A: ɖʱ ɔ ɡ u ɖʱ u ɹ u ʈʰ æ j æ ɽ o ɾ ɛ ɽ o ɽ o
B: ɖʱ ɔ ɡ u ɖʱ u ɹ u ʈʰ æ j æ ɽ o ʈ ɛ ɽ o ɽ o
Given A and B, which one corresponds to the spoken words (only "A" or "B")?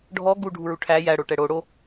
B